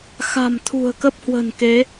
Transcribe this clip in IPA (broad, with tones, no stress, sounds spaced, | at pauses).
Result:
x a̤˨˩ m t̪ʰ ṳ˨˩ ə̯ k ə˦˥ p̚ h w ə̤˨˩ n k e˨˦